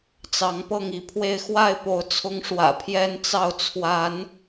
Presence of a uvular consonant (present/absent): absent